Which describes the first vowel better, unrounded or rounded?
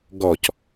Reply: rounded